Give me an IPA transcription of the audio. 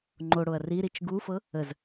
ŋ͡ǃ o ɽ o ɐ̯ r i ɾ i t͡ʃ ɡ u f ɤ | ə z

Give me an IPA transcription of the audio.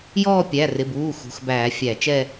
j ɔː˦˨ pʲ æ˩˧˩ r ɪ˩˧˩ b uː˩˧˩ x ṳ˩˧˩ x b æː˧˩˧ fʲ æ˧˩˧ t͡ʃ ɛ˦˨

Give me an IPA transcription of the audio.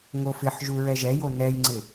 ŋ o f ɪ ħ ʒ u ɹ ɛ ʒ ɛ j o n ɛ j ŋ͡ǀ ɪ

